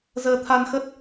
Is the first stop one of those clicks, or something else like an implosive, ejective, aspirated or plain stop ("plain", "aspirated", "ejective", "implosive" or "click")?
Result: aspirated